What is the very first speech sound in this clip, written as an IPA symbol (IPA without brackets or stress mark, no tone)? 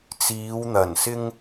t͡s